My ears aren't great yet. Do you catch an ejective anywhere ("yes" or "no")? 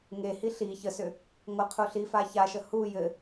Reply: no